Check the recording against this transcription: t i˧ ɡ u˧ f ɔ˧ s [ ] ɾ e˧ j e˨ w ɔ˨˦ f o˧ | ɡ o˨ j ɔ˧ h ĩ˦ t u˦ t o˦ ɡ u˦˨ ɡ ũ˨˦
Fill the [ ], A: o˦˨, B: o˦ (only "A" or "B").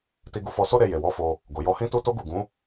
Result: B